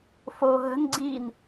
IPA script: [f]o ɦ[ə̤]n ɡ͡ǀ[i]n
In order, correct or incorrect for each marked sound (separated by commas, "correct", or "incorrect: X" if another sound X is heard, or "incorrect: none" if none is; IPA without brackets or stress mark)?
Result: correct, correct, correct